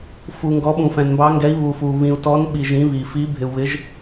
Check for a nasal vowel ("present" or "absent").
present